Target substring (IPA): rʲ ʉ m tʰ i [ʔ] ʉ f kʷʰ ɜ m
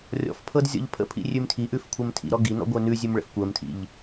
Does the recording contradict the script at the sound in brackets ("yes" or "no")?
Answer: no